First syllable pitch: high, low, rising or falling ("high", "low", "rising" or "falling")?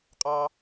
high